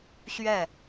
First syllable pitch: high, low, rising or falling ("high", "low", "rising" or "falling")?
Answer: falling